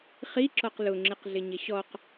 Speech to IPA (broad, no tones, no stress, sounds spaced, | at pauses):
χ i ǁ ɔ q l ʊ ŋ͡ǁ ɪ q ɮ ɪ ɲ ɪ ɕ ɔ q